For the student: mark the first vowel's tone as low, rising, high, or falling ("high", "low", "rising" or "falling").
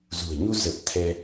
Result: low